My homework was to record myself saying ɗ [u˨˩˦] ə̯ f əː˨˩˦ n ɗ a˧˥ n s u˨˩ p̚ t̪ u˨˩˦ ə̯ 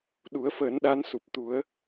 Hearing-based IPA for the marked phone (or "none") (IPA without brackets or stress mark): u˨˩˦